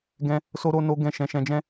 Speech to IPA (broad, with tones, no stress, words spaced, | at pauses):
ɡɛ̃˧ | so˦ɾo˦ no˧ ɡɛ̃˦ʃɛ̃˧ ʃɛ̃˧d͡ʒɛ̃˦